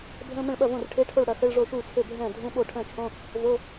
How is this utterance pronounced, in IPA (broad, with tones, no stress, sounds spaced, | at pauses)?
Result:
bʱ ə̃ː˧˥˧ m ə̃˥˩ ɭ ɓ ɐ˥˩ v õ˥˩ r ʈʰ e˧˥˧ ʈʰ o˥˩ ɭ ɽ ɐ˥˩ x ə˧˥˧ ɭ ʐ o˥˩ ʃ uː˥˩ t͡sʰ ø˥˩ bʱ ɛ̃ː˥˩ dʱ ũ˧˥˧ ɓ o˥˩ ʈʰ ə̃ː˥˩ t͡ʃʰ õ˧˥˧ | v o˧˥˧